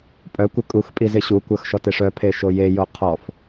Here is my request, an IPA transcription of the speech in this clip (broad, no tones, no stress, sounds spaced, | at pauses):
pʼ œ kʷ ɪ kʼ u x pʼ i z ɪ ɕ u kʷ œ x ʃ ɔ t e ʂ œ pʰ e ʃ o j e j o qʰ ɔ f